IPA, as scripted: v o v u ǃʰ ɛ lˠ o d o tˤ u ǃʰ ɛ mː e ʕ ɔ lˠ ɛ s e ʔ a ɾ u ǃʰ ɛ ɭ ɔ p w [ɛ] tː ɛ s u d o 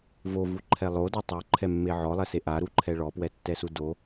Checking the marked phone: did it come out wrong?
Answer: no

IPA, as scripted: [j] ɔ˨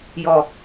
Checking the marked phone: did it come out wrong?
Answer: no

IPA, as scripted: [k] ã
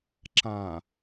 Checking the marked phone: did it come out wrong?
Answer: yes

